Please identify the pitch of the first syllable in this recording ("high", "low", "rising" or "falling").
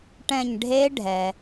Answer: falling